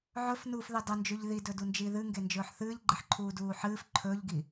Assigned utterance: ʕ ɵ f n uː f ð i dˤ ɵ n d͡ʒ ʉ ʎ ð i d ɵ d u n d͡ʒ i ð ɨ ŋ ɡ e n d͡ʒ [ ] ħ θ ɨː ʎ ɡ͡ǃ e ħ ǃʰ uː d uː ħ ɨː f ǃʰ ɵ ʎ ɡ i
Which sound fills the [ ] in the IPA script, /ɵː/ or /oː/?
ɵː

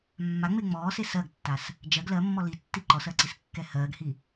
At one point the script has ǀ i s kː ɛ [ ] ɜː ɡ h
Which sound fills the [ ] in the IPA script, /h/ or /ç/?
h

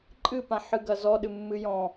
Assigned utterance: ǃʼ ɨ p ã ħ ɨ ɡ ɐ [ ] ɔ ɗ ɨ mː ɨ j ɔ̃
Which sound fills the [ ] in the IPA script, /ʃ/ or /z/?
z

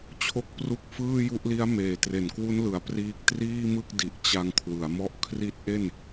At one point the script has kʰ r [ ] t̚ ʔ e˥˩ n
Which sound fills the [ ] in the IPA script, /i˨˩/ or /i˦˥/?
i˦˥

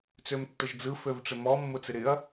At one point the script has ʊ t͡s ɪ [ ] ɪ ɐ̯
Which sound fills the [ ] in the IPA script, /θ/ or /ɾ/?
ɾ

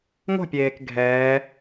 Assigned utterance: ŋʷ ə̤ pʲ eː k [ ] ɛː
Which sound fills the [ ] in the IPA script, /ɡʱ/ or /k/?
ɡʱ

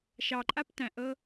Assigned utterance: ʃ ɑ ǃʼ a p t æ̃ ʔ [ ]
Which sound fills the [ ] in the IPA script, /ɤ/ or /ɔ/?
ɤ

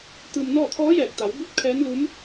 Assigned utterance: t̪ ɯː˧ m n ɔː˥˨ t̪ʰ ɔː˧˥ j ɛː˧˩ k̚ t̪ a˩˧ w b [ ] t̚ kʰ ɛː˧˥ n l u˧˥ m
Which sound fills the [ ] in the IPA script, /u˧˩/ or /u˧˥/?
u˧˥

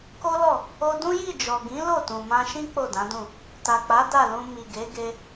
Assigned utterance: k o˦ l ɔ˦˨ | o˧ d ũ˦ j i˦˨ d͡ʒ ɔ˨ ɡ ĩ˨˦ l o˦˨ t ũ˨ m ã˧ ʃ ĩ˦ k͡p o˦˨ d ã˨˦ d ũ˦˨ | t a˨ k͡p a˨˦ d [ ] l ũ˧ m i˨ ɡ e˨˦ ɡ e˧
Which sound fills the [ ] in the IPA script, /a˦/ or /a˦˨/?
a˦˨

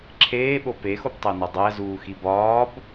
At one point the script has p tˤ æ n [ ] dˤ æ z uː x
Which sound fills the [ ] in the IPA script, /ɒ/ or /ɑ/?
ɒ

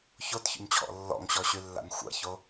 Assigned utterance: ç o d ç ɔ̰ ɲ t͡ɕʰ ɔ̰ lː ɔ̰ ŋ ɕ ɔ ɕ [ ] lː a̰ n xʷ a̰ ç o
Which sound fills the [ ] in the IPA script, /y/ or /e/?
y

